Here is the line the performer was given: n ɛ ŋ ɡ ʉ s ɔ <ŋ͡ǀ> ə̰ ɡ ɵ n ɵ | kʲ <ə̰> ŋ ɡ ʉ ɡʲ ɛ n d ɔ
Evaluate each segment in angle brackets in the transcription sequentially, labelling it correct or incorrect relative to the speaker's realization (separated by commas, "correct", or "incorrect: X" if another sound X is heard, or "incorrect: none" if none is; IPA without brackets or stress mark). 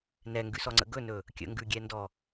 correct, correct